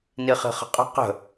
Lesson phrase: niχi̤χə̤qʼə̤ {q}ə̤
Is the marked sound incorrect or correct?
correct